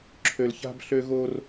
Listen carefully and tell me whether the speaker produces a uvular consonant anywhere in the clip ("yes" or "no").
no